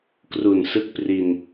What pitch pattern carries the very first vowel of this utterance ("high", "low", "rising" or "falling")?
low